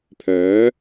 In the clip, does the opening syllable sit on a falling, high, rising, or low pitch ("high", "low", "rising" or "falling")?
rising